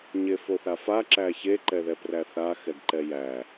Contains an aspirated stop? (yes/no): no